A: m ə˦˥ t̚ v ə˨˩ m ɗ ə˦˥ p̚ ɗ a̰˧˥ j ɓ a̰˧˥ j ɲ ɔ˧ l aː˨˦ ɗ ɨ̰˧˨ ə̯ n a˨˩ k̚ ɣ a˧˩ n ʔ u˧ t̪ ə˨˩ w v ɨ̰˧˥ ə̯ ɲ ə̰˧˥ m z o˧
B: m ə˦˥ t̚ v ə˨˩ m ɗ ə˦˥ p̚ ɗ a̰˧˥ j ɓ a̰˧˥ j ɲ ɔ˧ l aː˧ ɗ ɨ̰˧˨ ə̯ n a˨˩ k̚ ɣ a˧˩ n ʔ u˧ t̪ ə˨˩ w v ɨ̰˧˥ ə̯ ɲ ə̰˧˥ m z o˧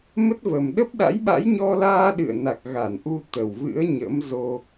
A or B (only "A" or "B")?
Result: B